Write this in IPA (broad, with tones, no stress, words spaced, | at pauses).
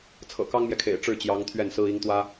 t͡sʰɤ̰˨˩kɑ˥ŋmjɛ˨kʰḛ˨˩ɪ̯ ʈ͡ʂɻ̩˥˩t͡ɕjɑ˧˥ŋ t̪ʰɥɛ˥˩nsɹ̩˥ i˧˥ŋt̪wä˥